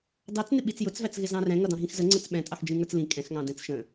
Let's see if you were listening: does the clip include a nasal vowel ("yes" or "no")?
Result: yes